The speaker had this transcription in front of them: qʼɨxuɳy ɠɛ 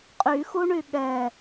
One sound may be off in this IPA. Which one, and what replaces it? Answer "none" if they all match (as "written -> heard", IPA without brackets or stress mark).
ɨ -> y